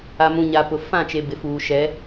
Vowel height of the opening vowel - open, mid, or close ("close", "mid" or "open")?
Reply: open